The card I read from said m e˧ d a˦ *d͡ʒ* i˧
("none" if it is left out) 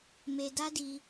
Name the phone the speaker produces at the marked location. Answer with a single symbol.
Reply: d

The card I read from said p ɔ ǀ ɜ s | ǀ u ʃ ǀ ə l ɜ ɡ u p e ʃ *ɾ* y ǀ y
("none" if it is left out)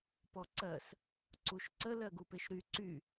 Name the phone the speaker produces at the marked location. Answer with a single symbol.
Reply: ɾ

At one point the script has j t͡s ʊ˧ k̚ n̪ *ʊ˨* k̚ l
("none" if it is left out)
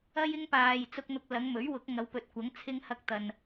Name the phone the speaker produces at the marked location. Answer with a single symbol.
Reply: ʊ˧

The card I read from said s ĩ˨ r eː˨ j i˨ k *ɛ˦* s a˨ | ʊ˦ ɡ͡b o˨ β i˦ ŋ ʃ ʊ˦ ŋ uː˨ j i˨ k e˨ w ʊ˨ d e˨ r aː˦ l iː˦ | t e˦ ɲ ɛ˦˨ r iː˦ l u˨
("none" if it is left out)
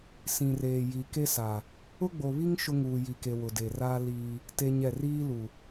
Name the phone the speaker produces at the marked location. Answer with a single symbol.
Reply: e˦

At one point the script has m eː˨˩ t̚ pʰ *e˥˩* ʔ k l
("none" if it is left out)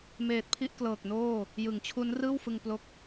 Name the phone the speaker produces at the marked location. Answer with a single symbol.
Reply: i˥˩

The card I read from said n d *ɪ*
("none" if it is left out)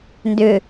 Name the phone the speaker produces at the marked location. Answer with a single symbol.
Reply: ʏ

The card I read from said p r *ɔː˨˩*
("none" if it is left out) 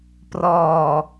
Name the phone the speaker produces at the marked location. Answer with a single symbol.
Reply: ɔː˨˩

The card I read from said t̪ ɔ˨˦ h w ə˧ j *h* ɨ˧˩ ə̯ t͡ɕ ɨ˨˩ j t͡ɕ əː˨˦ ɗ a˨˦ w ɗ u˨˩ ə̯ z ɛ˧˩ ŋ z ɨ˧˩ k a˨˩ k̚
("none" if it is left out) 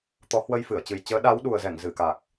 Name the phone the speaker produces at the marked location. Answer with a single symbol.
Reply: f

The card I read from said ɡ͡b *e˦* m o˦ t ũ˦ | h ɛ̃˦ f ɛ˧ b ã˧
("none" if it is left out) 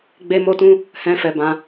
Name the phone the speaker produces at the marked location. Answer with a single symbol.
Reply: e˦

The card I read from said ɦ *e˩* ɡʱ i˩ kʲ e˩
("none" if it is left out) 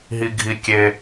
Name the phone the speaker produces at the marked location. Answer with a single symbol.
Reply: i˩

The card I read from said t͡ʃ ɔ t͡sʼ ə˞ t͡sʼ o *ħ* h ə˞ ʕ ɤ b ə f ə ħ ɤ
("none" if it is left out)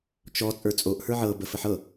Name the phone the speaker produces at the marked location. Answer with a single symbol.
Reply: ʔ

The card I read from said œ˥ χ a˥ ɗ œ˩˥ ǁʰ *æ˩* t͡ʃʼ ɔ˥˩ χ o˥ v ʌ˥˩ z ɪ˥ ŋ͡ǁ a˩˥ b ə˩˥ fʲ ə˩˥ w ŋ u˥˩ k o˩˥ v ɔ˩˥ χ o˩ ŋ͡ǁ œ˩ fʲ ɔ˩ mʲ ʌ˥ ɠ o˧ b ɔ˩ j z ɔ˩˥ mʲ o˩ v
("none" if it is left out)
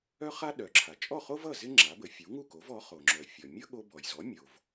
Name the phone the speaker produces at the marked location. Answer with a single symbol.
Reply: a˩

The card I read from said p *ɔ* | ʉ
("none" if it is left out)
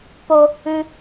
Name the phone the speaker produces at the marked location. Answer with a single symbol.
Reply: o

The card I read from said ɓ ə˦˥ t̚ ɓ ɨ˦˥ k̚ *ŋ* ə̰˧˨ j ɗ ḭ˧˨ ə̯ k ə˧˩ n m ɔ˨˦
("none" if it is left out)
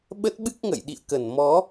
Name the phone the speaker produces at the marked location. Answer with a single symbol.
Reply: ŋ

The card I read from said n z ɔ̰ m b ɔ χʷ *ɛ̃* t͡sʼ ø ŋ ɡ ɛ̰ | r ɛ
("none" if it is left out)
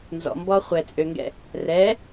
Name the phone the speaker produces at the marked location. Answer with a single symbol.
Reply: ɛ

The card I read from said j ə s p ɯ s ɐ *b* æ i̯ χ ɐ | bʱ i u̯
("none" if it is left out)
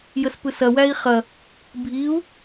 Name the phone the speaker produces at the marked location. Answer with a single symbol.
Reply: w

